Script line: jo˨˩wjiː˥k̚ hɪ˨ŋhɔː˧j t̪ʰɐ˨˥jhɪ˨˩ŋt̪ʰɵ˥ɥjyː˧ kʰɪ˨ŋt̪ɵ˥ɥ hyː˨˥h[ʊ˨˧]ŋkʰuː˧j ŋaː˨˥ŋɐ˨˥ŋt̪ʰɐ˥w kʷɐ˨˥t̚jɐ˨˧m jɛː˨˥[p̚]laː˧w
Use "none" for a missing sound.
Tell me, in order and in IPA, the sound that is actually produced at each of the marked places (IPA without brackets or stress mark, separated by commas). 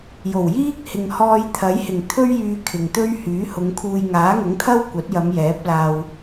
ʊ˨˧, p̚